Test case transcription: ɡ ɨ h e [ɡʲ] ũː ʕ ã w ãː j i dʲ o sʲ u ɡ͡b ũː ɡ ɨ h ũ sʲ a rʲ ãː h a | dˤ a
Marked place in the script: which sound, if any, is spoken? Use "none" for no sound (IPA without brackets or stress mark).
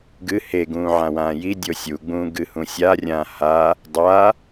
ɡ